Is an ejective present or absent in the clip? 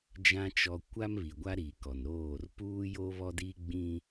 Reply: absent